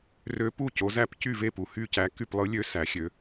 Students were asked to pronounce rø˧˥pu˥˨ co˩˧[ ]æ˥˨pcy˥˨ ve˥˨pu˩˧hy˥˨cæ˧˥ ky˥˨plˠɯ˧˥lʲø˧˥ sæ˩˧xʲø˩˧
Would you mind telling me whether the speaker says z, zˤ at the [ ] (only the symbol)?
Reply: z